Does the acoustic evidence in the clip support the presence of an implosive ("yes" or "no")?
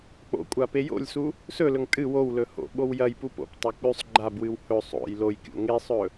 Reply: yes